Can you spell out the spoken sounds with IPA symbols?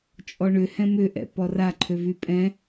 t͡ʃʼ ɔ ɳ ʏ h ɛ̃ m ʏ ʔ ɛ̰ p ɔ r a ǃʰ ø v y pʼ ɛ̃

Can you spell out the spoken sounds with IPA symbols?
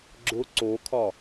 ɡ͡ǁ ʊ ǀ o kʰ ɒ

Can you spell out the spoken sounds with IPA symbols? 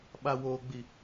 ɓ a˨ w oː˨ ɡ͡b i˨

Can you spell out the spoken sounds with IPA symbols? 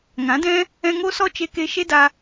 ŋ ã˨˦ d ɛ̃˦ | ɛ̃˧ ŋ o˦ s ɔ˦ t͡ʃ e˧ k e˧ ʃ e˦ d a˧

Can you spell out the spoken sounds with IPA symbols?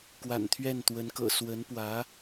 k w a̰˨˩ n t̪ʰ ɥ ɛ˥˩ n t̪ w ə˧˥ n k ɤ̰˨˩ s w ə˧˥ n p w ä˧˥

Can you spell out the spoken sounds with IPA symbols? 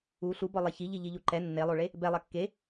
u ɬ u b ɔ lˠ e ç i ʎ i ʎ i ʎ u ǃ ɛ nː e lˠ o ɭ e | b ɛ lˠ ɐ kː e

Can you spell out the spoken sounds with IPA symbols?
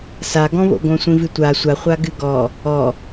s a ɡ ɔ̃ β o̰ ɡ õ sʷ ĩ v ɨ tʷ a sʷ a χʷ a ɡ ɨ ɡ ɔ | ɔ

